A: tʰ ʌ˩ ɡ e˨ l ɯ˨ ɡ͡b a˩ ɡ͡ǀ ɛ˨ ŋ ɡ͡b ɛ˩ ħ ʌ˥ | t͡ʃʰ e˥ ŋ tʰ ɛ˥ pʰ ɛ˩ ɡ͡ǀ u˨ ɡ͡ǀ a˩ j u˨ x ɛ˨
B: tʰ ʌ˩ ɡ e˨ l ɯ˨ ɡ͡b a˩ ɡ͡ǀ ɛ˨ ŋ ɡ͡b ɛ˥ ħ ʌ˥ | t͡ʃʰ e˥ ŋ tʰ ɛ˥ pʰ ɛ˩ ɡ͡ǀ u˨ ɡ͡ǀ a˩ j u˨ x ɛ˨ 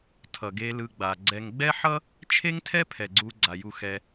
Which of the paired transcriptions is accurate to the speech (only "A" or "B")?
B